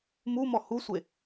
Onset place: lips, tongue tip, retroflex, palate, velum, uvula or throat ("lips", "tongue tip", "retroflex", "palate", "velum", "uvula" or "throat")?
lips